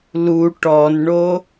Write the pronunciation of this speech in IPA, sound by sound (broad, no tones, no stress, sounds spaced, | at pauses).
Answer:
l u ʈ ɔ n ɳ o